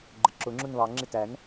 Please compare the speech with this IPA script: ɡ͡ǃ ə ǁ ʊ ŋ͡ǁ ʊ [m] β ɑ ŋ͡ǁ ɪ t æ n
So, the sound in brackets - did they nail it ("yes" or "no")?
no